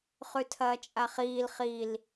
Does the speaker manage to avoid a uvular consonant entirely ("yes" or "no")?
no